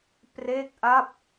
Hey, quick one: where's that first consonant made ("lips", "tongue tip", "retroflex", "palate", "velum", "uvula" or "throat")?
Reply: lips